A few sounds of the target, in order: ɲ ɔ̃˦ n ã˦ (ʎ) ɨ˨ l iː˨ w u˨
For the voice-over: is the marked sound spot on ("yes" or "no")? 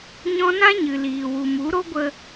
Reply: no